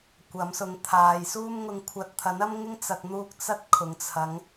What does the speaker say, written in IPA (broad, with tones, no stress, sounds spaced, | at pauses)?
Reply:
kʷ ɐ˨˥ m s ʊ˨˧ ŋ t̪ʰ aː˨ j s uː˥ m ŋ ʊ˧ ŋ kʷʰ ɐ˨˥ t̚ t̪ʰ ɐ˨˥ n ɐ˥ m ŋ ɪ˥ ŋ t͡s ɐ˨ k̚ n̪ uː˧ k̚ t͡s ɐ˥ t̚ kʰ ʊ˨ ŋ t͡sʰ ɐ˨˧ ŋ